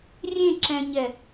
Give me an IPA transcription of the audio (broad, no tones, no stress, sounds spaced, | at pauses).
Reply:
rʲ ẽ ǁ ɛ̃ ɲ ɛ